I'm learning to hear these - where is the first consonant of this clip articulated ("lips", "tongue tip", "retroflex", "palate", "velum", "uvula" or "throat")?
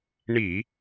retroflex